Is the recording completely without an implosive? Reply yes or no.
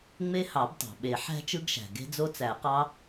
no